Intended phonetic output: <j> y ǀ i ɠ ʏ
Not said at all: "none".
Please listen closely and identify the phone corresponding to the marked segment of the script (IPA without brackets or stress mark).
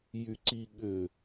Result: j